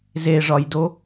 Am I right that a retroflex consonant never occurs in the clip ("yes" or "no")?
no